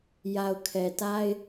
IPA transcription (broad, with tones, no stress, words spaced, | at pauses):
ja˨ʊ̯kʰɛ˨ta˦ɪ̯